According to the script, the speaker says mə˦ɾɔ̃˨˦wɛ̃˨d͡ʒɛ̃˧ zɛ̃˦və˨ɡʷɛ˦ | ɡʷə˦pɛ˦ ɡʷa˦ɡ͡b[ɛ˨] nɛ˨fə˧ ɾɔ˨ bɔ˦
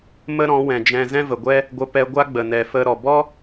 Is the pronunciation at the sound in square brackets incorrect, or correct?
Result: incorrect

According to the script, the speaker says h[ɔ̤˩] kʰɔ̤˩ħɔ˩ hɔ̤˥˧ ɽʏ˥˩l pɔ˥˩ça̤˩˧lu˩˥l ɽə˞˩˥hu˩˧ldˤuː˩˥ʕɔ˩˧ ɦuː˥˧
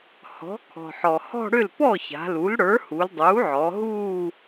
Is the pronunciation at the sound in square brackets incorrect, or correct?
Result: incorrect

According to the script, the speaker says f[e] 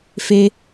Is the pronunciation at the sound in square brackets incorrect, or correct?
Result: correct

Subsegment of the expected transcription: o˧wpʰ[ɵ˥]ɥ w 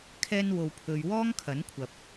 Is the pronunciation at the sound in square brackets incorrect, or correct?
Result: incorrect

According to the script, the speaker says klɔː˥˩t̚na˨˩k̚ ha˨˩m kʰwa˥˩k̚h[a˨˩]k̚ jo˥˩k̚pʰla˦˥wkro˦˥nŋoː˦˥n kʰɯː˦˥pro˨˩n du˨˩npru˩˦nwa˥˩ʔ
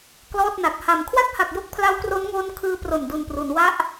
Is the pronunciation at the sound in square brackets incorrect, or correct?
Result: correct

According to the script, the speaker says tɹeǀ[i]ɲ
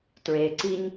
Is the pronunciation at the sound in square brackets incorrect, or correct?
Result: correct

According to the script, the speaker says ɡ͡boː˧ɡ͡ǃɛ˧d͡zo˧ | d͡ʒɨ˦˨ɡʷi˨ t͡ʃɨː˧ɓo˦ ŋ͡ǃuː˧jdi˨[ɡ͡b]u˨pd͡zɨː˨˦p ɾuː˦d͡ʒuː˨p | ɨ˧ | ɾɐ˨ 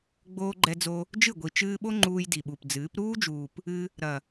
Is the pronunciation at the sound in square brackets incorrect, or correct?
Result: incorrect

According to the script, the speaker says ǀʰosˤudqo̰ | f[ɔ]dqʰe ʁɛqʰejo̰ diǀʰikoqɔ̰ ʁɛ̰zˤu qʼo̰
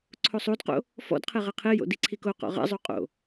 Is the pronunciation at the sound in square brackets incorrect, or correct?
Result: incorrect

